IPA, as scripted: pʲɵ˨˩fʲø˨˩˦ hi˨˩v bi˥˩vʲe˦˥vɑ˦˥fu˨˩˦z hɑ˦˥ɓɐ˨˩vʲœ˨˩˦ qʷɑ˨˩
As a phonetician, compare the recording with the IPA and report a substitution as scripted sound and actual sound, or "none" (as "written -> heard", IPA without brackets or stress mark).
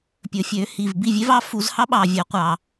ɐ˨˩ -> ɑ˨˩